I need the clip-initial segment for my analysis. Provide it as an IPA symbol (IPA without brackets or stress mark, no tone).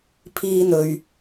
pʰ